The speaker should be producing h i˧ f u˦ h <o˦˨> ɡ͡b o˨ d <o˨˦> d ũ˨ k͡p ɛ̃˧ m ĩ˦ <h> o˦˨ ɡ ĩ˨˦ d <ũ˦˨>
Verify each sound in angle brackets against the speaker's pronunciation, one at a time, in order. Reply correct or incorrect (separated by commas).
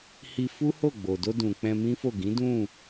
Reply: correct, incorrect, incorrect, correct